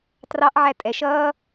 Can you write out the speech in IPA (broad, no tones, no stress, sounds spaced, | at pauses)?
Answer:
t r ɑ ʔ ʕ æ tʼ ɛ ʃ ʌː